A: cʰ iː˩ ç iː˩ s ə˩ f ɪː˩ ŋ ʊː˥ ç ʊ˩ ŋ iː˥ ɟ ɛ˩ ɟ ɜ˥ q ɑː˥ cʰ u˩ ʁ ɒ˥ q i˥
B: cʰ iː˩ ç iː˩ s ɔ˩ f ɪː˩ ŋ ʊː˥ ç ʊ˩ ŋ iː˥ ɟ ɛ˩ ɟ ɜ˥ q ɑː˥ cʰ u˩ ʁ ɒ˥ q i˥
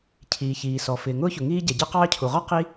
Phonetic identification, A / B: B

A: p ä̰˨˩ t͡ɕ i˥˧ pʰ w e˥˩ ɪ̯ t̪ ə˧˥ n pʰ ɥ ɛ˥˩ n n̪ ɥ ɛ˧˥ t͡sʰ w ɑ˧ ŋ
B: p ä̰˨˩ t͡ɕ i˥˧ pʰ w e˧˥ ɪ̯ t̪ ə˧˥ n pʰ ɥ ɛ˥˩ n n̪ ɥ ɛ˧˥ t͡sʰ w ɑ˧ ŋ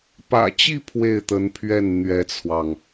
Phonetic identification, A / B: A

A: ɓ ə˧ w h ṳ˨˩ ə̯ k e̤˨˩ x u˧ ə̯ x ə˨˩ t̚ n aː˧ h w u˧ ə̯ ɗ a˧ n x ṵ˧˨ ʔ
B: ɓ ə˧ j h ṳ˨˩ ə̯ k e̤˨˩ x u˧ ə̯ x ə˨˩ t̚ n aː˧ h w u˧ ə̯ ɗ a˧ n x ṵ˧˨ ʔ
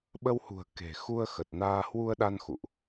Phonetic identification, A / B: A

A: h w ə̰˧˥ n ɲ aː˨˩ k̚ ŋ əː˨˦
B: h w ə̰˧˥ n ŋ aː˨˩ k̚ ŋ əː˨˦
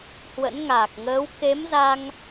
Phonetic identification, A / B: B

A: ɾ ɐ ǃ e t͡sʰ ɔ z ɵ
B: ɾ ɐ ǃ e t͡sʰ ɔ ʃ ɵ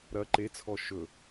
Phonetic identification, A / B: B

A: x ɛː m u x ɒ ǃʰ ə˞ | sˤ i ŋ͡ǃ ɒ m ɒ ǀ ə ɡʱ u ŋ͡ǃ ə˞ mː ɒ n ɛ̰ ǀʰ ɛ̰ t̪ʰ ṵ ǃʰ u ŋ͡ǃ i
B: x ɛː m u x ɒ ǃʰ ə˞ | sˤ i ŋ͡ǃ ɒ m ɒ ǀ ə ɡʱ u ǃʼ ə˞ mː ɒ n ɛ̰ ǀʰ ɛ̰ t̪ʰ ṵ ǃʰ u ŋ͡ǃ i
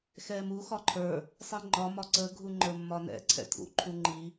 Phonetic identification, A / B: A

